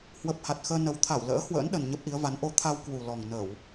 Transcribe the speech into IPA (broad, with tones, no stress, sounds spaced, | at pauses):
h w ə˨˩ p̚ h a˨˩ t̚ x əː˧ n ə˨˩ w t̪ʰ a˧˩ w l ə̰ː˧˥ h w ə̰ː˧˥ n ɗ ə˨˩ n ɲ ə˦˥ p̚ ʔ i˨˦ ə̯ v a˨˦ n ʔ o˧ t̪ʰ a˧ w k w u˨˩ l ɔ˨˩ ŋ n ə˧˩˨ w